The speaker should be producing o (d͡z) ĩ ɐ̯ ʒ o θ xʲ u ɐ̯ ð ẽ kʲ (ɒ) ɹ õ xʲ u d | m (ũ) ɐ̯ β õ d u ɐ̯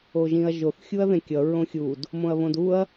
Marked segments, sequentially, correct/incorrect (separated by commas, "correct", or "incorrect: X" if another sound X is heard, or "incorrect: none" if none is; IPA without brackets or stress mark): incorrect: ʒ, incorrect: ʌ, incorrect: õ